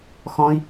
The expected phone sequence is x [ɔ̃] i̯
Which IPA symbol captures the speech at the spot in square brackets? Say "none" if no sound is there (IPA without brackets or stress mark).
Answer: ɔ̃